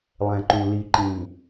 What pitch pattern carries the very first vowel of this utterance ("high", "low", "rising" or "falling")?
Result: low